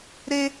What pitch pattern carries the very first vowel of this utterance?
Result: high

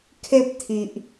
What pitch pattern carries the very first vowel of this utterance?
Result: high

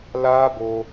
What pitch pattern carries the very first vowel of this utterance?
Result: high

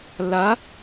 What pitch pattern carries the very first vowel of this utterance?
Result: rising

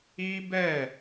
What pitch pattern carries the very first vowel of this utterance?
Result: high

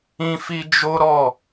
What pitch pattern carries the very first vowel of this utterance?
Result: high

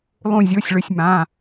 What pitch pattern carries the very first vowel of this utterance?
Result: falling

